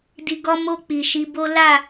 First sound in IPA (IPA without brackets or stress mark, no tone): d